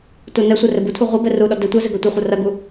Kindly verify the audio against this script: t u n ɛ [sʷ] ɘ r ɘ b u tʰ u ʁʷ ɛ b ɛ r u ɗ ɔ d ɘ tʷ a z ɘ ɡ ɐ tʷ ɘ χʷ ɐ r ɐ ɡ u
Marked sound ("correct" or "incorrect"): correct